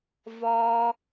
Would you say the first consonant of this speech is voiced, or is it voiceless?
voiced